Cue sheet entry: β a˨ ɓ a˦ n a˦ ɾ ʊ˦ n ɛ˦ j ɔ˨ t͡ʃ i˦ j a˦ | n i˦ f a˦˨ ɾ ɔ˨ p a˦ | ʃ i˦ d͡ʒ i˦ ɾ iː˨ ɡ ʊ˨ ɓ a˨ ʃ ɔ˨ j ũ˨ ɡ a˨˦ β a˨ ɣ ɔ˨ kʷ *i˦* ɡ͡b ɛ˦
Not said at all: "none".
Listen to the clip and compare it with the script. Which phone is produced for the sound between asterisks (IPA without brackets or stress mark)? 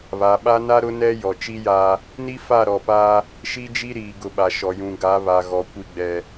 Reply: i˦